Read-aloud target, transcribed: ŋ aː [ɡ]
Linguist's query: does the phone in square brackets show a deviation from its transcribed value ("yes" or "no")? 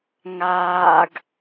no